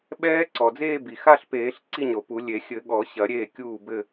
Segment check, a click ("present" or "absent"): present